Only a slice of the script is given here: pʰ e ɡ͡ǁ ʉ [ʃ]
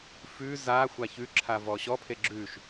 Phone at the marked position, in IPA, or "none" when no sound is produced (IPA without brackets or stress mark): ʃ